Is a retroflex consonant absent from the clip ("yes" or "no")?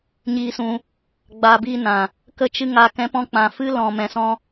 yes